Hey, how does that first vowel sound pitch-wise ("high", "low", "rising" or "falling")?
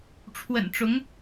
low